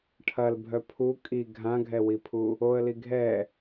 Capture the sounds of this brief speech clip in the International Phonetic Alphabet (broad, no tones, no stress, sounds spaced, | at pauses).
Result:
ʈʰ ɐ l bʱ œ pʰ u kʼ i ɡʱ ã ɡʱ ɛ w i pʰ u | o ə̯ l i ɡʱ ɛ